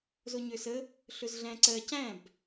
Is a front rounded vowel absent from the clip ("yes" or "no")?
no